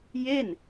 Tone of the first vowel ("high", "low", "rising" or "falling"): falling